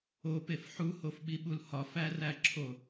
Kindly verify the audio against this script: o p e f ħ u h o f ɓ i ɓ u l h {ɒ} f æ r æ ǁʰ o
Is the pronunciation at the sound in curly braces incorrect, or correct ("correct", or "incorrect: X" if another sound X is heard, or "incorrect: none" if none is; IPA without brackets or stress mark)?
correct